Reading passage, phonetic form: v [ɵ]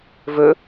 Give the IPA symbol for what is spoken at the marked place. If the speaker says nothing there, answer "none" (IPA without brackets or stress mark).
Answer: ɵ